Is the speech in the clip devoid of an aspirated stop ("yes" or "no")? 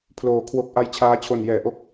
no